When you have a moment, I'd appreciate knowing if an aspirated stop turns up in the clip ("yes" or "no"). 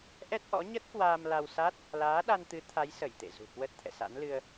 yes